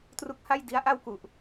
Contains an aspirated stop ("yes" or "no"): no